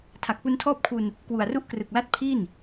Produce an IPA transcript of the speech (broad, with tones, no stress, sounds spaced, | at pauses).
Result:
tʰ a˨˩ k̚ p u˧ n tʰ ɔː˥˩ p̚ kʰ u˧ n | k w u˨˩ a̯ r u˥˩ ʔ k r ɯ˨˩ k̚ l a˥˩ t̚ pʰ i˥˩ n